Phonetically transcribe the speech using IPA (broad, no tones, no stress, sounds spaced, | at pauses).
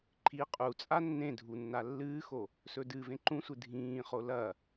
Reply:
ǃʰ i qʼ u t͡sʼ a nː ẽ dʱ u nː a lː ɨː x o | s ɵ d ɨ v ẽ ǃ ũ sʷ ɨ dʱ ĩː χ o l ɐ